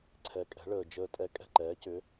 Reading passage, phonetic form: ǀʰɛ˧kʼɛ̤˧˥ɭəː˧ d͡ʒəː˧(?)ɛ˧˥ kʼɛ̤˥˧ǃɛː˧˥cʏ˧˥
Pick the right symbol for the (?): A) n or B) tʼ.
B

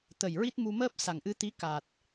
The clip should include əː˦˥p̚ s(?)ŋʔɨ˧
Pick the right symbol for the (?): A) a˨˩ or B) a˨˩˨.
A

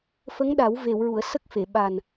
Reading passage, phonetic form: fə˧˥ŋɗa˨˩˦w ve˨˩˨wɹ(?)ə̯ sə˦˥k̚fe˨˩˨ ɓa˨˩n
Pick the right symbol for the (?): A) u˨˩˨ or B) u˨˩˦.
A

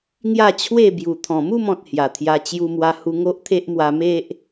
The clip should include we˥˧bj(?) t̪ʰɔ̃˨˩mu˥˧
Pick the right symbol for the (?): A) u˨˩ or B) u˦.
A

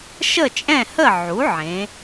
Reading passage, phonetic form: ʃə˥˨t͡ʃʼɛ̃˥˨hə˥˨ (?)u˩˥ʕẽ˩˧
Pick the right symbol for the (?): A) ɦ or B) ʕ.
B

